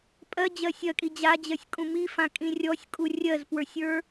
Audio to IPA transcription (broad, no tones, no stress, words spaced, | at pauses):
pʼɜd͡ʑɜ sʲɜkʼi d͡ʑad͡ʑɜsʲkʼũ mifãkʼĩ rʲɔsʲkʼu rʲɜzpwə˞sʲə˞